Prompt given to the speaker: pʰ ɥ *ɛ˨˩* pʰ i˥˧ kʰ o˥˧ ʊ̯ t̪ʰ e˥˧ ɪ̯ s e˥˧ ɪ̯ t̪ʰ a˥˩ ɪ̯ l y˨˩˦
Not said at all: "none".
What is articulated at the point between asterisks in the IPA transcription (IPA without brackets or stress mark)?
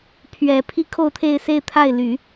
ɛ˨˩